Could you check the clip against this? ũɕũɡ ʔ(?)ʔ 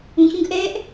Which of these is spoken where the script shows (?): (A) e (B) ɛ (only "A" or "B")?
B